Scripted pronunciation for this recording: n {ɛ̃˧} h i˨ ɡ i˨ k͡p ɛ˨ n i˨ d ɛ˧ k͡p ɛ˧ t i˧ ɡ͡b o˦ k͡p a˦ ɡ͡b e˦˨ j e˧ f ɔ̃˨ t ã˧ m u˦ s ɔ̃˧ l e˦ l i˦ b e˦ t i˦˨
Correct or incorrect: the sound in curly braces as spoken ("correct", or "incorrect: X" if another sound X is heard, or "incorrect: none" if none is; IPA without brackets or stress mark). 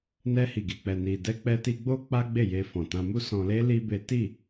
incorrect: ɛ˧